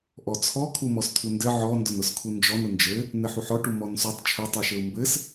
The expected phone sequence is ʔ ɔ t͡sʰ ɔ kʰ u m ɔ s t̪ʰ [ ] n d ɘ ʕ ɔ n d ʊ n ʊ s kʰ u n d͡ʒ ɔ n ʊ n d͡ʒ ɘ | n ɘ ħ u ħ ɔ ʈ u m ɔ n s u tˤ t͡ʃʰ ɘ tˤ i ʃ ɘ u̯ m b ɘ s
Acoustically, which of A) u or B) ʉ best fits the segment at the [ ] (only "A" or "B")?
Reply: A